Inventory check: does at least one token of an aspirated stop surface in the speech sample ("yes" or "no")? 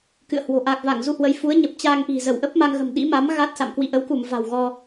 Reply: no